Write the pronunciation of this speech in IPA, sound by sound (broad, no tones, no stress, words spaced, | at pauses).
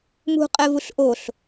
mṳqʼɛvuɬ ʔoɬ